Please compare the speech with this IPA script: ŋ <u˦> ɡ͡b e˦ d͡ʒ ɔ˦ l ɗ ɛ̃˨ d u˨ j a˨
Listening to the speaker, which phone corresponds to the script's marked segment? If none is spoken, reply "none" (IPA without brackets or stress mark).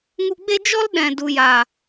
u˧